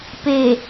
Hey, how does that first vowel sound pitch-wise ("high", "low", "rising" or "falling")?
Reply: low